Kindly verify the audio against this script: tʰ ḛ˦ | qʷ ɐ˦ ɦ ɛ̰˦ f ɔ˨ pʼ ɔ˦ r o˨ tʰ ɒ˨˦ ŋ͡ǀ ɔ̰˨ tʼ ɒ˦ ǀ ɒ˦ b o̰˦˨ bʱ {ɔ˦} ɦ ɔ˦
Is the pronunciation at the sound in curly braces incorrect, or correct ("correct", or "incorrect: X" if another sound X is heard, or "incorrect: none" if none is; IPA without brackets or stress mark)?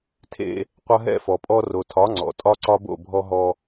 correct